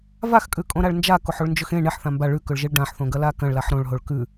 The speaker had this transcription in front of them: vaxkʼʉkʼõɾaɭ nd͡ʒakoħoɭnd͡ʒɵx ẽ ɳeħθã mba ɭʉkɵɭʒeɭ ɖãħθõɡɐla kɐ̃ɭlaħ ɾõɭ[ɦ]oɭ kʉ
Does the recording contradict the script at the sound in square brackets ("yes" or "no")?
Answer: no